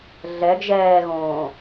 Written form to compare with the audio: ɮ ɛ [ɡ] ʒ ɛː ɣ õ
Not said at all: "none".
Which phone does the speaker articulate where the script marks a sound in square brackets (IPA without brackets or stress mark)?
ɡ